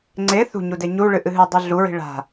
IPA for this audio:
ŋ͡ǀ e θ ṳ ɲ u d e ɲ u ɭ ɨ ʔ ɨ ɦ ɨ dˤ ʉ ɮ u ɹ i̤ ɭ a̤

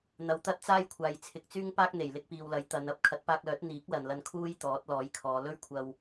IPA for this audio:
n̪ ɐ˨˥ w t̪ ɐ˥ t̚ t͡s aː˥ j kʷʰ aː˨ j t͡sʰ ɪ˨˥ k̚ t͡s yː˥ ŋ p aː˥ k̚ n̪ e˨˩ j l ɪ˧ k̚ p iː˨ w l ɐ˨˥ j t̪ ɐ˨˧ n ɐ˧ p̚ kʰ ɐ˨˥ t̚ p aː˧ k̚ l œː˨˥ t̚ n̪ iː˨˥ k̚ l ɐ˨ n l ɐ˧ n kʰ uː˥ j t̪ ɔː˨˥ t̚ l ɔː˨˥ j kʰ ɔː˨˧ l ɵ˥ ɥ kʷʰ ɐ˧ w

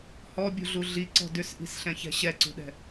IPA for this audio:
h ɔ bʲ ṳ ɮ u ɮ i ǀ ɔ̤ d ʏ s ʔ i̤ s ɬ ɛ̃ ç ɛ̤ ɕ ɛ ǀ ṳ ɗ ɛ̤

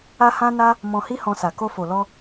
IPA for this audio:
a˦ h ã˦ n a˦ | m ɔ̃˧ h i˦ h ɔ̃˧ s a˨ k o˧ f o˨ l ɔ˧

